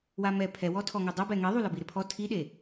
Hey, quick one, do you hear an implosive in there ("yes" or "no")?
yes